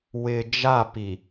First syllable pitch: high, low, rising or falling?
low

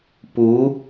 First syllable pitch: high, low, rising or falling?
rising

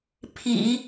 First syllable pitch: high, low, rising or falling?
low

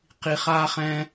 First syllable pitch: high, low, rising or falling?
low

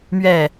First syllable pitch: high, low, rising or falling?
falling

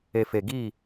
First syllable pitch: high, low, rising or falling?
low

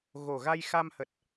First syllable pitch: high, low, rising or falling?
low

